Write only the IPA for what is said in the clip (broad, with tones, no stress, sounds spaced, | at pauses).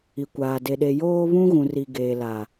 i˨ kʷ aː˨ d e˨ ɗ e˨ j oː˦ β ũ˦ ɣ ũ˨ r i˨ ɡ eː˨ l a˨